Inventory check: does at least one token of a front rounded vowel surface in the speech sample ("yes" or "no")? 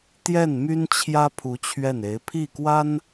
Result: yes